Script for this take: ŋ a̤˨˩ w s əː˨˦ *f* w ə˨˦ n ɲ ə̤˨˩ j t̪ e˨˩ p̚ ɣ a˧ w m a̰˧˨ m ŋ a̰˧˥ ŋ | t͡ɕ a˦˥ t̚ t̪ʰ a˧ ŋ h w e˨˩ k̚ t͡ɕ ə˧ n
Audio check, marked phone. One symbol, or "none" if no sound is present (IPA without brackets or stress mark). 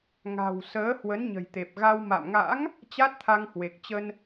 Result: h